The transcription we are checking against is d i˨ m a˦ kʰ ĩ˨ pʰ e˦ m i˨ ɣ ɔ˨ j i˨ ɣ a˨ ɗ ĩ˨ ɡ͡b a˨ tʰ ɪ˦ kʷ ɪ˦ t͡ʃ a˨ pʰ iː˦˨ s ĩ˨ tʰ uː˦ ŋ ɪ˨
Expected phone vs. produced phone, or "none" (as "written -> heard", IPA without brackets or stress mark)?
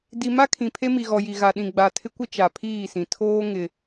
uː˦ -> oː˦